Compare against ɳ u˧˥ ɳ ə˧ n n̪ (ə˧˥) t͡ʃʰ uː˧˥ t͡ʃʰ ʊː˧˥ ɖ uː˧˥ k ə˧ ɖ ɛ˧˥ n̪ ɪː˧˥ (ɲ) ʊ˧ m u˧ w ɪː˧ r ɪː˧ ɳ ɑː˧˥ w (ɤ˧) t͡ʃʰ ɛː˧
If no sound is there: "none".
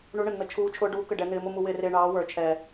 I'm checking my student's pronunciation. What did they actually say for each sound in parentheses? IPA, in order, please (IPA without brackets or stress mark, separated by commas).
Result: ə˧˥, m, ə˞˧